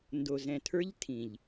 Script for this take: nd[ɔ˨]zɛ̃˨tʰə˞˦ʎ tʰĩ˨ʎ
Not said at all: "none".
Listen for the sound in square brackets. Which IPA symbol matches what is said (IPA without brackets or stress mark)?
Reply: o˨